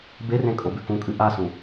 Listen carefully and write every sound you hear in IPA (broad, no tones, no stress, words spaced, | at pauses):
berẽ kʼobʉkũkʼɨ ʔasũ